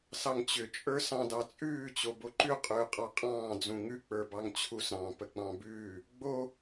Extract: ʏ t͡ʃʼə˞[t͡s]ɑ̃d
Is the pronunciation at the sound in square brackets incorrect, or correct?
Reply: incorrect